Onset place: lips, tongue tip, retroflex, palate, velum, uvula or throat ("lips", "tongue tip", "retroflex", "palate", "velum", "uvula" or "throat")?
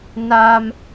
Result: tongue tip